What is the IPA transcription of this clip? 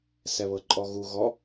s ɛ β ɤ ǃʼ ɔ ɣ u ɣ ɔ

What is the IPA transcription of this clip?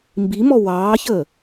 m b i m ɔ w ɑː ç əː

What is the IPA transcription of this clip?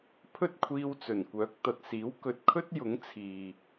pʰ ɵ˥ t̚ kʷʰ iː˧ w t͡s ɵ˨˩ n kʷ œː˨˥ k̚ t̪ ɐ˨ t̚ s iː˨˥ w k ɵ˨ t̚ kʰ ɵ˥ t̚ j ʊ˨˥ ŋ t͡sʰ iː˨

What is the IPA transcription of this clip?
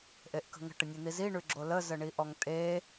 ʔ e ʔ k ə̤ ŋ ə̤ ʈ ə nʲ e n̪ i z i ɳ ʉ ɡ͡ǁ o l ə z ə ɳ i ʔ ɔ ŋ tʼ e

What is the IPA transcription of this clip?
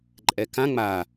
ǃʼ ɛ k ã ŋ͡m a

